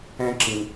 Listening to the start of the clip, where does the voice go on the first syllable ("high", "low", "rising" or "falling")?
high